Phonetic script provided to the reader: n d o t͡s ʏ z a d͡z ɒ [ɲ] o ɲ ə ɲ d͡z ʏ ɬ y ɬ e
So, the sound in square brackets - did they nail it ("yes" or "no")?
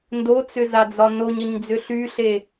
no